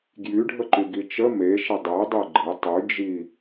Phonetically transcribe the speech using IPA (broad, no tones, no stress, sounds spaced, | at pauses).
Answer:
ɡ j y ɖʱ ə ǃ y ɡ i t͡ʃ ə m e ʃ ə dˤ e dˤ e ɡ͡ǃ e tˤ y d͡ʒ i